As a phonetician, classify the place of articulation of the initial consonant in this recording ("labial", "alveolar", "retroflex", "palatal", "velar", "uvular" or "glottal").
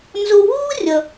alveolar